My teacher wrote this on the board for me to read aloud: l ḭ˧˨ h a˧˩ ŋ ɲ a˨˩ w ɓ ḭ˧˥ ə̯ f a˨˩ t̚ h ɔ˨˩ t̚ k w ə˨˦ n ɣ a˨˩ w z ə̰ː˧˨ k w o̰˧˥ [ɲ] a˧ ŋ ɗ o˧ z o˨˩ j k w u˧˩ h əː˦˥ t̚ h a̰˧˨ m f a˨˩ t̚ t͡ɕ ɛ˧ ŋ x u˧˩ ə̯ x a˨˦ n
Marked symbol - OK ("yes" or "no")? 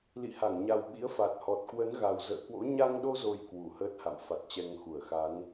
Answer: yes